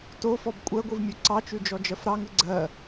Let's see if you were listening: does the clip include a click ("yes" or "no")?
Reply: yes